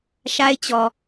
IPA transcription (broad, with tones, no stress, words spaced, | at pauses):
ʃa˦ɪ̯t͡ɕɔ˨